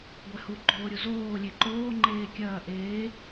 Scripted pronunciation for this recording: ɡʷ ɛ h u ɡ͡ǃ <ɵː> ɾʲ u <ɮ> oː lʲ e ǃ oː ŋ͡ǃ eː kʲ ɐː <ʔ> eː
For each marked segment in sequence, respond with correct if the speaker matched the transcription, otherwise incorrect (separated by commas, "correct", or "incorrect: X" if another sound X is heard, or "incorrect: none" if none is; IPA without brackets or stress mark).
incorrect: oː, incorrect: z, correct